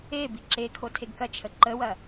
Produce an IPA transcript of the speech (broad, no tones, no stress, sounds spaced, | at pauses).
e b i ǁ e kʰ o tʰ e ɡ k ɐ t͡ʃʰ ə ǃ ə w ɐ